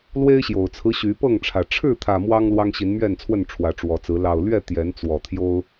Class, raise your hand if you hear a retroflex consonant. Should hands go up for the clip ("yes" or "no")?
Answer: yes